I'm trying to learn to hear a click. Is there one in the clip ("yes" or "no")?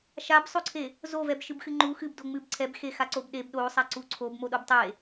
yes